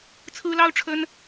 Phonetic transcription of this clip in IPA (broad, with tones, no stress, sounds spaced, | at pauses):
t͡sʰ ɹ̩˥ l ɑ˥ ʊ̯ ʈ͡ʂʰ ə˥ n